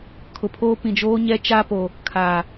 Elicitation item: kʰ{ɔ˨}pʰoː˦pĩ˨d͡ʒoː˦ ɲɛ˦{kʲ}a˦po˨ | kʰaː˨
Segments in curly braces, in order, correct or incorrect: incorrect, incorrect

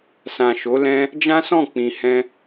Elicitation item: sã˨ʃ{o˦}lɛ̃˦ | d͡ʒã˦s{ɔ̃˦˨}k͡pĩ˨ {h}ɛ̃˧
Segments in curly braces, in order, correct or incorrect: incorrect, correct, correct

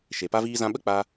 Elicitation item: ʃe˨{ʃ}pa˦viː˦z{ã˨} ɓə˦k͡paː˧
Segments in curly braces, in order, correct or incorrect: incorrect, incorrect

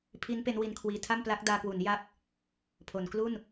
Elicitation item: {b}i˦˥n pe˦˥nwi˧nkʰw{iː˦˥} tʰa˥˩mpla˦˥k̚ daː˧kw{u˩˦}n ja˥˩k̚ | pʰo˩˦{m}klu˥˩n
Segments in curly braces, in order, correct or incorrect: incorrect, incorrect, correct, incorrect

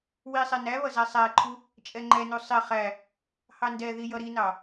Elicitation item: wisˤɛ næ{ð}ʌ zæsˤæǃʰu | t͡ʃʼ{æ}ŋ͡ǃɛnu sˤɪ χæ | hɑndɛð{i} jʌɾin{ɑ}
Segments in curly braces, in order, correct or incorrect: incorrect, incorrect, correct, correct

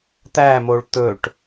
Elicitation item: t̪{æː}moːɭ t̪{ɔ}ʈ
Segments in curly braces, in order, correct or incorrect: correct, incorrect

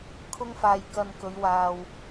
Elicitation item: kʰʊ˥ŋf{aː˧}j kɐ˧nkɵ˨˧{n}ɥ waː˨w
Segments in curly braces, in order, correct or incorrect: correct, incorrect

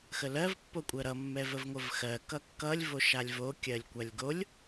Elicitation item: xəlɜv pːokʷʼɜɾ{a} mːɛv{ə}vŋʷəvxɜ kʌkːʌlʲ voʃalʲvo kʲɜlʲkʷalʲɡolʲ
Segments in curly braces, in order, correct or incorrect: incorrect, correct

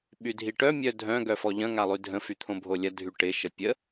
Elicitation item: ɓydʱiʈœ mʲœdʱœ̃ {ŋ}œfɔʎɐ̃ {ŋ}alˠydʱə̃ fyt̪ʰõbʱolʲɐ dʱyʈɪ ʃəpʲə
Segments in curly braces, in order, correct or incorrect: incorrect, correct

